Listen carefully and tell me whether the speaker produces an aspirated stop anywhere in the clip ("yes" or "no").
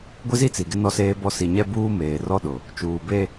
no